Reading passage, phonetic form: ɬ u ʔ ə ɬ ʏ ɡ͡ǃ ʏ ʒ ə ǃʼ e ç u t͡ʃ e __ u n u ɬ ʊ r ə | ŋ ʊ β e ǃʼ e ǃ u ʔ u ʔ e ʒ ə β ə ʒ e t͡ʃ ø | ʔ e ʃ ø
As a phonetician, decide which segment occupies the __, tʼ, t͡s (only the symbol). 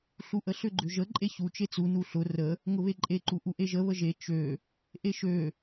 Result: t͡s